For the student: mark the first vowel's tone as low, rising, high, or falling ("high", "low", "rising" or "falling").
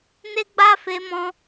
high